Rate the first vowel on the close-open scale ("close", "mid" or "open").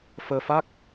mid